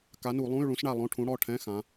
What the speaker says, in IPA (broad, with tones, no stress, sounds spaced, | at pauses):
k a˨˥ n u˧˩˧ lˠ ũ˧˥˧ y̯ ɭ ũ˨˥ s ɳ a˦˨ lˠ õ˧˥˧ ʈʰ ũ˨˥ ɽ ɔ˩˧˩ ʈʰ ɛ̃˧˥˧ x ã˩˧